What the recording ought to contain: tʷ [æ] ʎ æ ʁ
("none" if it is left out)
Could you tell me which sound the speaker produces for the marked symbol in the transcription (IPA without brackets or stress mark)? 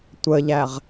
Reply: ə